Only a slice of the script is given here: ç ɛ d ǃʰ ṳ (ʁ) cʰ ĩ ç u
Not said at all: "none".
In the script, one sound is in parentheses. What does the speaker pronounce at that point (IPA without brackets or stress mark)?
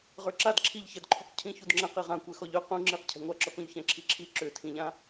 q